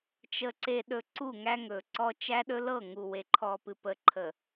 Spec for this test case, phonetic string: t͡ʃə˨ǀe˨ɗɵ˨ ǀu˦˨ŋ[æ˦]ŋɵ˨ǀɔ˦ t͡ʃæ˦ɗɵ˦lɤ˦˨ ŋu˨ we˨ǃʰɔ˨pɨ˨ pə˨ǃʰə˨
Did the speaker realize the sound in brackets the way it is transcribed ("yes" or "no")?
yes